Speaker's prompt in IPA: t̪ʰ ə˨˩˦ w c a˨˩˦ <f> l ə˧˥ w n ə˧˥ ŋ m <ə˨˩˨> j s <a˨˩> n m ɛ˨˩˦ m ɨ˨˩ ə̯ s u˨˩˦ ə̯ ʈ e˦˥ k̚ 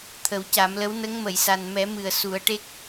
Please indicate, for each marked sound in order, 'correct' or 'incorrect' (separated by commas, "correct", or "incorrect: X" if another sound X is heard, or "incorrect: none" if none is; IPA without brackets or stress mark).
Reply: incorrect: m, correct, correct